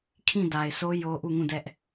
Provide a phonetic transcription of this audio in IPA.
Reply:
kʰĩ˦˨ da˨ɪ̯sʰo˦ jo˦ ʔu˦˨ŋũ˦˨dɛ˦ʔ

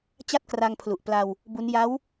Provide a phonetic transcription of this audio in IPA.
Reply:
t͡ɕa˥˩t̚kra˧ŋ pʰlu˨˩ʔpla˧w | bu˦˥n ja˦˥w

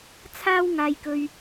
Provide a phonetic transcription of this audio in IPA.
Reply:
t͡sʰaː˥wŋaː˧jkɵ˧ɥ

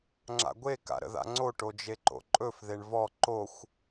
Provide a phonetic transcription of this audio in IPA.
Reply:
ŋ͡ǁa̰ɡʷe ka̰ɾə̰ða̰ŋ͡ǀo ʈod͡ʒeǃo̰ǃʼɵf ðeɳvɔ ǃoxʷ

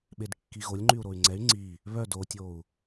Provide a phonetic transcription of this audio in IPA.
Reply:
ɓedkːiɣolʲ ŋ͡ǃyu̯ɾoy̯ŋ͡ǀɛy̯ ŋ͡ǀi | βœd otʲou̯

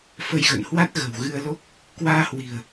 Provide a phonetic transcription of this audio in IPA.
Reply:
fə˧jɣə̰˧˨nhwa˦˥t̚ ɣə̤˨˩wɣɨ˧ə̯lo˦˥k̚ | kwaː˧hwi̤˨˩ə̯

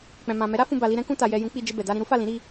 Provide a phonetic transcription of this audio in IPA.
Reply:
k͡pɛ̃˨mã˨ mɛ˨˦ɾa˦ fũ˧ba˨li˧ɾɛ̃˦ kũ˧ta˨jɛ˨ jũ˨˦k͡pi˧d͡ʒe˧ bɛ˨ da˧ɾĩ˧ɾu˦ fa˦˨lĩ˨˦ ɾi˧

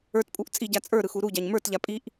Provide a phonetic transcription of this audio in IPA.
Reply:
ə˞tpʼuʔ t͡sʼiɟa t͡sʼə˞ɾɯxu ɾuɟaɲ mə˞tʎa pʼiʔ

